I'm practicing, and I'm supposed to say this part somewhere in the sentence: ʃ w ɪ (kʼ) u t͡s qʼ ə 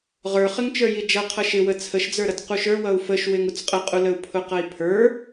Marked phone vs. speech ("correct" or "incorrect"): incorrect